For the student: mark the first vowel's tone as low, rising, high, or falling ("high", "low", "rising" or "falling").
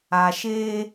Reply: low